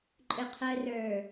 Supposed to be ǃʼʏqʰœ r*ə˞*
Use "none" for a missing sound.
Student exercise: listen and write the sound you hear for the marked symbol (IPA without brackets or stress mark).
ə˞